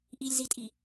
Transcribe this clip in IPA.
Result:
ʔ i lʲ z i tʼ i

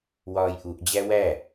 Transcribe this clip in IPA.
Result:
w ɒː j ʔ u ʔ d͡ʑ æ w æ

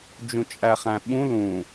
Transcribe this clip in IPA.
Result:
d͡ʒ ũ t͡ʃʼ æ χ æ̃ ɓ ũ l ũ

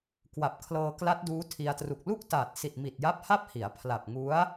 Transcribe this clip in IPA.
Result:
k w a˨˩ p̚ kʰ l ɤː˧ k l a˦˥ t̚ d uː˦˥ tʰ i˧ a̯ t r u˨˩ k̚ l u˥˩ k̚ t aː˨˩ t̚ s i˨˩ t̚ m i˨˩ t̚ j a˦˥ p̚ h a˥˩ p̚ h i˩˦ a̯ pʰ l a˨˩ p̚ ŋ u˦˥ a̯

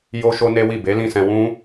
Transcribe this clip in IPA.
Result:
j o˦ ʃ o˦ n e˦ w i˦˨ b e˨˦ l ĩ˦˨ s ɛ̃˧ w ũ˦

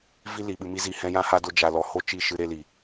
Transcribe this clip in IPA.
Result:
v i˦ l i˨ ɓ ɨ˧ m i˦ z iː˧ h ɛ̃˧ j ã˧ h a˧ d o˧ d͡ʒ a˧ l ɔ˧ h o˦ t͡ʃ i˦˨ ʃ ɨ˧ ɾ e˧ l i˨

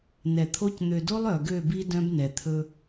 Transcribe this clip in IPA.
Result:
n ɛ˨ t̪ʰ o˦ c n̪ ø˨ d o˦ lˠ œ˨ ɡ ø˦˨ b i˦ d œ̃˦ b n ɛ˨ t̪ʰ ɵ˦

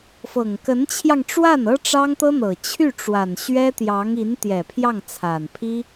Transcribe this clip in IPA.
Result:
f ɤ˨˩ ŋ k ə˧˥ n t͡ɕʰ j ɑ˧ ŋ ʈ͡ʂ w a˥˩ n ɤ˥ ʈ͡ʂ ɑ˥ ŋ t̪ ɤ˥ n̪ ɤ˨˩ t͡ɕʰ y˥˩ ʈ͡ʂ w a˨˩ n ɕ ɥ ɛ˥ t̪ j ɑ˧˥ ŋ i˧˥ n t̪ j ɛ˨˩ pʰ j ɑ˥˩ ŋ t͡sʰ a˨˩ n pʰ i˥

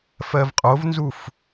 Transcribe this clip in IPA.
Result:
f ɜ v qʼ o v n z u f

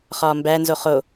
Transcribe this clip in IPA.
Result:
χ ɒː m b æ n z o χ o

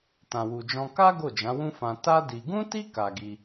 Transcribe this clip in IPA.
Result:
t ã˨ w u˨ d͡ʒ ɔ̃˧ k a˦ ɡ o˦˨ d͡ʒ ã˨˦ w ũ˦ f ã˧ t a˦ d i˧ ɡ ũ˦ t i˦ k a˧ ɡ i˧

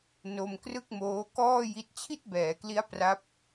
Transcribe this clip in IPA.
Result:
n o˧ m k r ɯ˥˩ k̚ m oː˦˥ k ɔː˥˩ j i˦˥ t̚ t͡ɕʰ i˥˩ t̚ b ɛː˩˦ k l i˦˥ a̯ p r a˦˥ p̚

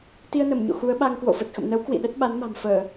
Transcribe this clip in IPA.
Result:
t̪ i˧ ə̯ n ə˧˩ m ɲ o̰˧˨ x u˨˦ ə̯ ɓ a˧ ŋ k w o̰˧˨ f ə˨˩ t̚ x ə̰˧˨ m n ə˨˦ w k w ḭ˧˨ ɗ ə˦˥ t̚ ɓ a˨˦ n m a̤˨˩ m f əː˧˩˨

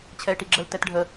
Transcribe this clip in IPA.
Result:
t͡ɕʰ ɛ ɪ̯ ʈ i ɡ͡ǁ ə l t ɛ t ɖʱ ə

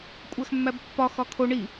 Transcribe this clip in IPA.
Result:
kʷʼ æ x mː æ b pː ɒ x ɒ kʰ o ɳ i

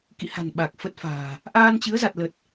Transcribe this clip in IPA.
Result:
k ḭ˧˨ h a̤˨˩ n ɓ a˨˩ k̚ f ə˦˥ t̚ f a̤ː˨˩ | ʔ aː˧ n t͡ɕ ɨ˨˦ ə̯ z a˨˩ t̚ l ə˨˩ t̚

